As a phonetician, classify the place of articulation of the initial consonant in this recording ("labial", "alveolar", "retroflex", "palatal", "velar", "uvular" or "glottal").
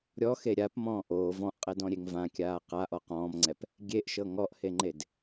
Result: alveolar